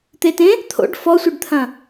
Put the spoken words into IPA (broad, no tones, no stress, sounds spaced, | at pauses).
t̪ e t ẽ | t̪ʰ o̰ ɖ f ɔ sʷ ɨ ɖ t̪ʰ ɐ̃